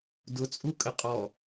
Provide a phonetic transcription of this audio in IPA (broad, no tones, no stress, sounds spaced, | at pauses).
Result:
d ʊ t͡sʼ u kʼ ə qʼ ɔ